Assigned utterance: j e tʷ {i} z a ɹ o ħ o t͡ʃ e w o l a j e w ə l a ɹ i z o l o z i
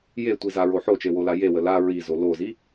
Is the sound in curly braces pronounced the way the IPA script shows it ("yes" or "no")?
yes